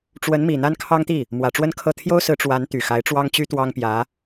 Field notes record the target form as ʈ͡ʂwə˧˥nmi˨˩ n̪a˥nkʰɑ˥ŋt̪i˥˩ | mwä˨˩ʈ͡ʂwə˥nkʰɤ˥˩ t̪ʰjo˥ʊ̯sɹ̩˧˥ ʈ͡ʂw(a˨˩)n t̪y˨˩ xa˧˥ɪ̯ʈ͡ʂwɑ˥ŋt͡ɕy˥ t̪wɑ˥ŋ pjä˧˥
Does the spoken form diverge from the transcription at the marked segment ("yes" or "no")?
yes